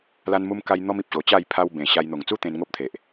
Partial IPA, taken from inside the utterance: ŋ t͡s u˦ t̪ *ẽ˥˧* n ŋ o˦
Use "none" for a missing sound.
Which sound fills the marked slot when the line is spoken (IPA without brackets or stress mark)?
ẽ˧